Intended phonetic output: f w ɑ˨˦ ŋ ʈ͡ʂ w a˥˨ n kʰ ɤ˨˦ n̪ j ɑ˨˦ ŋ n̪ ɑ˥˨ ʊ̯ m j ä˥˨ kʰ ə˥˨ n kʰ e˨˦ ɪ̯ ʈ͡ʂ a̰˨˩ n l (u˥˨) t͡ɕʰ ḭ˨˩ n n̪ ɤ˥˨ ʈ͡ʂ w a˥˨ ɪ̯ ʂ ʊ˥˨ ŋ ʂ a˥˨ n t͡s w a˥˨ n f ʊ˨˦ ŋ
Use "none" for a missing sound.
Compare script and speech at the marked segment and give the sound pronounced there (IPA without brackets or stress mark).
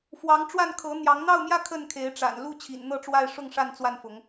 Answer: u˥˨